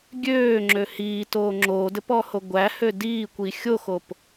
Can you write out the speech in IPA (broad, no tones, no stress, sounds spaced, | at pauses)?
ɡʲ øː ŋ͡ǁ ø h iː t oː ŋ͡ǁ oː d ɘ p ɔ h o ɡʷ æ h ø d iː kʷ i xʲ o x o p